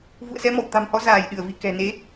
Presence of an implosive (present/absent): present